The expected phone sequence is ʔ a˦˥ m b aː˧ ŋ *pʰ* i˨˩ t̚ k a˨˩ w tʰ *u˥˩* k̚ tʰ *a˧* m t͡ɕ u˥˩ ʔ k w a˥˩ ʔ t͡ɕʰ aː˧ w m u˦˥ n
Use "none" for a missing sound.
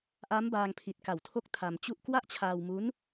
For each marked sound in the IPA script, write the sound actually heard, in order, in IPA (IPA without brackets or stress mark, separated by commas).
pʰ, o˥˩, a˧